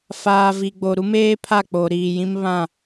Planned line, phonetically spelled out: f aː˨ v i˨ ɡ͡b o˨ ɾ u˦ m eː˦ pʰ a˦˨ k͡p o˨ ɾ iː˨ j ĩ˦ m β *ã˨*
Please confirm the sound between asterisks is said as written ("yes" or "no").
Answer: no